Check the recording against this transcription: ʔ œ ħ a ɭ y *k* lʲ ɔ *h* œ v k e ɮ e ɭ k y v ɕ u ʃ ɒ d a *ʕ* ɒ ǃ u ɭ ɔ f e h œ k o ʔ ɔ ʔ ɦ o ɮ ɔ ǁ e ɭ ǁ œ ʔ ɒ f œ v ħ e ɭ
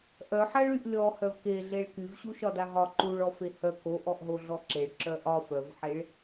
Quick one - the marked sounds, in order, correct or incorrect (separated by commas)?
incorrect, correct, incorrect